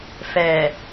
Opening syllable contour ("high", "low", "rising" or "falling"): low